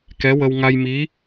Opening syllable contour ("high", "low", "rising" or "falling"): rising